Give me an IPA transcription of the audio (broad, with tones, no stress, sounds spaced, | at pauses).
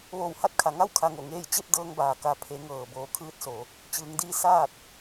ʋ oː˧˩ w h a˧ t̚ kʰ a˩ ŋ a˥˨ w kʰ a˧ ŋ o˧˩ ŋ eː˥˨ j t͡ɕ e˥˨ p̚ d ɤː˧ ŋ b aː˩ k a˩˧ pʰ e˩˧ ŋ ɤː˩ b oː˩˧ kʰ ɯː˧˥ t̚ s o˩˧ | t͡ɕ ɯː˩˧ ŋ d iː˧˥ s aː˥˨ t̚